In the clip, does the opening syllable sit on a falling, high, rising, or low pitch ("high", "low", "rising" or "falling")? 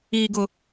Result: low